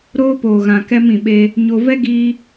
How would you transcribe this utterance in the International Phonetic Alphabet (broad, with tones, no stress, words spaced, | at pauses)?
ɾoː˦poː˨ ɣã˨kɛ˧m ĩ˨ɓe˧ | ɲo˧ vɛ˦ ɡiː˧